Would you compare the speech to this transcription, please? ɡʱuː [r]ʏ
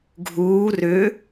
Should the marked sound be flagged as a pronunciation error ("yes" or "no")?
no